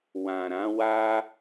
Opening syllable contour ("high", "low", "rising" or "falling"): low